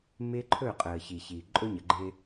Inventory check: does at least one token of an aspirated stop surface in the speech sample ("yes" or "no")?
yes